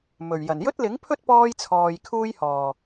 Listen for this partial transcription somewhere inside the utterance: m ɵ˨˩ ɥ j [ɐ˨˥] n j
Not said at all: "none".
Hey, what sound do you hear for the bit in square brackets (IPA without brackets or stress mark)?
ɐ˨˩